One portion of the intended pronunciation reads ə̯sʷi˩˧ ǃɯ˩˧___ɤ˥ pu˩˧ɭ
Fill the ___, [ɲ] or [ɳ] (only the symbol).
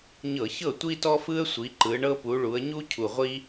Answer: ɳ